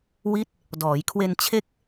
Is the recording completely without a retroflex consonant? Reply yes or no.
yes